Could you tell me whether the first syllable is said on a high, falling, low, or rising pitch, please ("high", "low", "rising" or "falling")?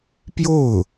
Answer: falling